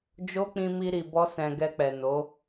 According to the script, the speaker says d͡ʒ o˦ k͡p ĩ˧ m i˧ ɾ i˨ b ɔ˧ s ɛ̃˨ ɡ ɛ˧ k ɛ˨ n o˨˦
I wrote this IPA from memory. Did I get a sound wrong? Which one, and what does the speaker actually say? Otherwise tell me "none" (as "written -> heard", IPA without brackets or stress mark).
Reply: k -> k͡p